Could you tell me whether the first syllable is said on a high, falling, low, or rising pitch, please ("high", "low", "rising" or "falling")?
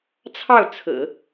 falling